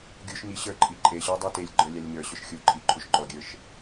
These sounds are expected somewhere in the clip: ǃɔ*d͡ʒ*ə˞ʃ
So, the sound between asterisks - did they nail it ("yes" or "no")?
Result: no